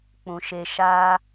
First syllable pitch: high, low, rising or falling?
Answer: low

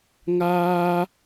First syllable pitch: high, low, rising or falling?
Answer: high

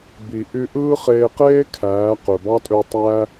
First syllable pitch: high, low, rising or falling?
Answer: low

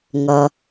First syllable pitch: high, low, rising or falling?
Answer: low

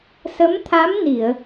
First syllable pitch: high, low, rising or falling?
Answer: rising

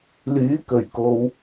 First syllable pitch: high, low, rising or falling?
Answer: rising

